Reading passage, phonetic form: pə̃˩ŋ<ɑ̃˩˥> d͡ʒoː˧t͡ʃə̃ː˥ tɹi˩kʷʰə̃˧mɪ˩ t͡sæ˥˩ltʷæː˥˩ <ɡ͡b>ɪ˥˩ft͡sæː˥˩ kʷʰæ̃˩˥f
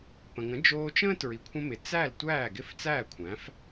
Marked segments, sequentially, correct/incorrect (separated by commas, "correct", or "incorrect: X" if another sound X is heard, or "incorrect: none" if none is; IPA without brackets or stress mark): incorrect: ə̃˩˥, incorrect: ɡ